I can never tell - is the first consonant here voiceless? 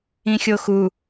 yes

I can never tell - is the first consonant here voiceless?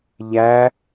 no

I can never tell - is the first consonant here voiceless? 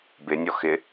no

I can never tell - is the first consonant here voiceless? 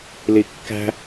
no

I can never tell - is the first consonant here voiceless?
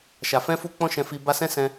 yes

